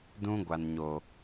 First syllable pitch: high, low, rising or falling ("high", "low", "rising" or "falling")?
high